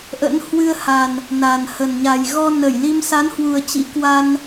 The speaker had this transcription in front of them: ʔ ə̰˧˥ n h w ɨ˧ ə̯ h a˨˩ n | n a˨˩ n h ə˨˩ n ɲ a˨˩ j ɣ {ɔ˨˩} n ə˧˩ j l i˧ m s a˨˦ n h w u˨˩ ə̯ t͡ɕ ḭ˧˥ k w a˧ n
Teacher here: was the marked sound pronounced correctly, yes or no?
no